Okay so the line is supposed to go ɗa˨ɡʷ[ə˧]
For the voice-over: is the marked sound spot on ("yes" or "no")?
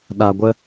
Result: yes